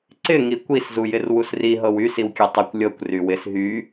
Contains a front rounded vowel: yes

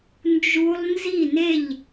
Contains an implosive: no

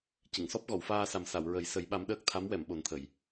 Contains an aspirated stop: yes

